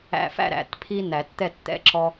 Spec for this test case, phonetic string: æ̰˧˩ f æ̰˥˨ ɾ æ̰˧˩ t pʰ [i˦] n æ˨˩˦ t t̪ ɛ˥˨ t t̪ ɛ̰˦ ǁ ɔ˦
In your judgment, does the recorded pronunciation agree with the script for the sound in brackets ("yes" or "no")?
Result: yes